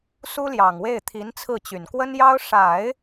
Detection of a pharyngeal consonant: absent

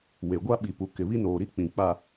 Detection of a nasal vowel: present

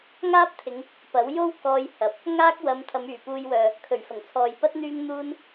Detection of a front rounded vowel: present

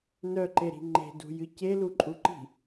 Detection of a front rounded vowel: present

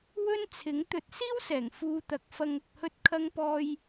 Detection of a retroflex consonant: absent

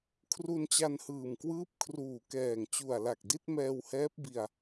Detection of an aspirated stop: present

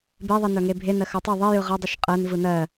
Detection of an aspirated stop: absent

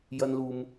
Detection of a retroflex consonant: absent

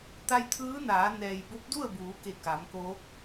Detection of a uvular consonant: absent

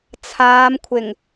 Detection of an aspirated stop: present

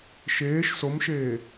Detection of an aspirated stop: absent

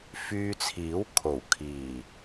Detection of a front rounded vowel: present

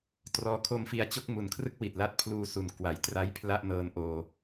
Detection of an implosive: absent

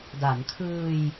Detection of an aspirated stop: present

